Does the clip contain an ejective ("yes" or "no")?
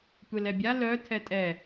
yes